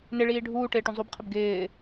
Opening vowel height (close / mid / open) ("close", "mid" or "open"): close